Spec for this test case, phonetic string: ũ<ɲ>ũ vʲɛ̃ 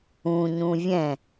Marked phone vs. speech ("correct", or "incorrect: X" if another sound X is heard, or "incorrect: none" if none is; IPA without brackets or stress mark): correct